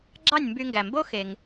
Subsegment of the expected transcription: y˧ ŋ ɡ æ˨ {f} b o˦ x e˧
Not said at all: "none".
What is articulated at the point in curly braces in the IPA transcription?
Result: m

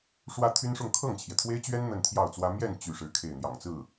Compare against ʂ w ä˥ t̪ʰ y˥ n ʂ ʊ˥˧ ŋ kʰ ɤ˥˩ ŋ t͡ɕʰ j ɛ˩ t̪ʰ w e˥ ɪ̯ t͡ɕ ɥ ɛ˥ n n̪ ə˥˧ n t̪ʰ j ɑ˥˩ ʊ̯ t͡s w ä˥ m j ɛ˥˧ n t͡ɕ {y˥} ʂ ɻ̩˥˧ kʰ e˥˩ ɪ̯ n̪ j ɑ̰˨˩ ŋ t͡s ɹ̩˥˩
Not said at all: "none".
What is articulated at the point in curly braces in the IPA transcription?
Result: y˥˧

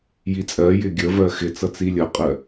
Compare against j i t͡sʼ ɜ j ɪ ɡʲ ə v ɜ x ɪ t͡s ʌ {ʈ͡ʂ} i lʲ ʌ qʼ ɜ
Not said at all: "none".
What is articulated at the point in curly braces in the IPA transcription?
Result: t͡s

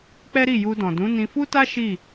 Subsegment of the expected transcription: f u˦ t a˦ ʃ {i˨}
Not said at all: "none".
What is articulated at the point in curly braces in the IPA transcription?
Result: i˦˨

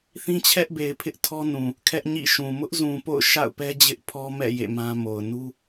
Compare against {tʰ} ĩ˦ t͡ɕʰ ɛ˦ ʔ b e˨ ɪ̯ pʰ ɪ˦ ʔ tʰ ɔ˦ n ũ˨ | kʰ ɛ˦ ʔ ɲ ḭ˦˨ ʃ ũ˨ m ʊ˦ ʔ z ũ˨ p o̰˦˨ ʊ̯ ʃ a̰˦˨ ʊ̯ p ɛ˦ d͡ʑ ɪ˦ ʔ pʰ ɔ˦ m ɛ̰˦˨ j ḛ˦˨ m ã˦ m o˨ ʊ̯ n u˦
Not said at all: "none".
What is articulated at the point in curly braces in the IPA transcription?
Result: θ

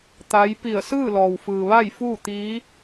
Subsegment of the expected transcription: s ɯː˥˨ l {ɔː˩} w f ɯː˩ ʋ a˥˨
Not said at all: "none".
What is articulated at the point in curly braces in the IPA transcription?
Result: ɔː˩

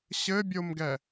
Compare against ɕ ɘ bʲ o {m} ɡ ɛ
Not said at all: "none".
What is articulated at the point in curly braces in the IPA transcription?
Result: m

